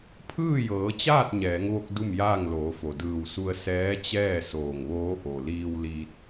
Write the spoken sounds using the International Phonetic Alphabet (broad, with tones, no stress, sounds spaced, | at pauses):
pʰ ɯː˥˨ j ɤː˩˧ t͡ɕ aː˥˨ t̚ ɲ ɛː˩˧ ŋ ʋ o˧ k̚ d u˥˨ m j aː˥˨ ŋ l oː˩˧ f o˩ d ɯː˧˩ w s u˧ ə̯ s ɛː˧˥ t͡ɕ ɛː˥˨ s oː˧˩ ŋ ʋ oː˧˥ ʔ o˩ l iː˧ w l iː˧ t̚